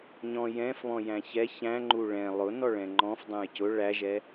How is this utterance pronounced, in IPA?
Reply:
ɲ ɔ̃ j ɛ̃ f β ɔ̃ j æ̃ ç ɛ ç æ̃ ŋ͡ǃ u ɭ ɛ̃ lˠ ʊ n ɔ ɭ ɛ̃ ŋ͡ǃ ɔ̃ f dˤ ɛ̃ j c ʊ ɭ æ ʒ ɛ

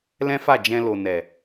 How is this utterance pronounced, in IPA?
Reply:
l ɛ̃˦ f a˦˨ d͡ʒ ɛ̃˧ l o˨ n ɛ˨

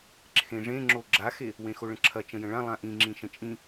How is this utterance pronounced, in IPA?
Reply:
ǁʰ ẽ ʐ ẽ ŋ͡ǁ o ɡ͡ǁ a x e | w ẽ x o ɭ ə̃ ǁʰ ɐ t͡ʃ ə̃ j ə̃ ɭ ã lˠ ã ʔ ĩ ŋ͡ǁ ĩ ʃ ə̃ t͡ʃʼ ĩ

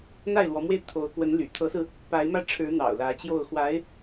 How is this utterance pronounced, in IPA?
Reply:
n̪ a˥˩ ɪ̯ l w ɔ˧˥ m w e˥˩ ɪ̯ t̪ʰ o˧˥ ʊ̯ k w ə˧˥ n l y̰˨˩ t̪ʰ ɤ˧˥ s ɹ̩˧ | p a˧˥ ɪ̯ m ä˥˩ ʈ͡ʂʰ ɻ̩˧˥ n̪ ɑ̰˨˩ ʊ̯ l ä˧˥ t͡ɕ j o˥˩ ʊ̯ x w a˧˥ ɪ̯

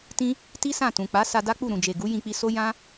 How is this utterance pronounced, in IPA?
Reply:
t ĩ˦ | t i˦ s ã˦˨ t ũ˨ k͡p a˨˦ s a˧ d a˦ k͡p u˦˨ ɾ ũ˨ d͡ʒ e˨ ɡ u˨˦ j ĩ˧ k͡p i˧ s o˦ j ã˦

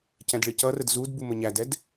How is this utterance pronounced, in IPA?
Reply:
c ɛ̃ d ɭ ɪ c ʌ r ə d z u d b u m ə ɲ æ d ɛ d

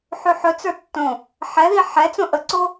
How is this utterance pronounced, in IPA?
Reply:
ħ ʉ ħ ɵ t͡s ə˞ tː õ | ħ ɛ ð i ħ ɛ t͡s õ ʔ ə ǀ o

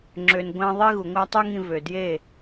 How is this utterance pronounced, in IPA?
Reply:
ŋ͡ǁ ø˧ n ɡʷ æ̃˥ ðˤ i˥ ɣ u˩ ŋʷ æ˥ tˤ y˥ ŋ ĩ˧ v ø˩ d j e˥˩

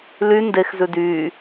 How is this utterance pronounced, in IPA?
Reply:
l y n d e x z ʉ d yː

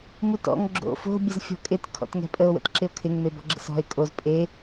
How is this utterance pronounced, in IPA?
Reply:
m u t ɔ̰ ŋ ɡ͡ǁ o̰ f o̤ bʲ ə z fʲ ɔ̤ kʼ ɪ t kʰ ɔ̰ t ŋ ɛ̤ pʼ ə o̯ w ə̰ t ǁ ɪ o̯ kʰ ɪ ŋ m e b ɔ̤ ɡ͡ǁ ə̰ s ɔ̤ e̯ kʼ o z pʼ e

